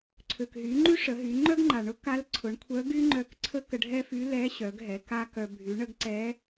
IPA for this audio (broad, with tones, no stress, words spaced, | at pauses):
ǀʰø˩kɦy˩˧ ŋ͡ǃy˥ʂə˩˧ɦy˩˧ ŋ͡ǃœ˥ɡŋ͡ǃa˩ɳʊ˧˥ ka˧˥l ǀʰʊ˩˧ɳkʷʰœ˧˥ ɡy˥ ŋ͡ǃœ˧k ǀʰə˥kə˧ɖʱɛ˥fy˧˥ lɛ˧˥ ɕœ˩˧ɡɦɛ˩˧ ka˥kœ˧ bʱy˩˧ɳə˧ɡ ǀɛ˧˥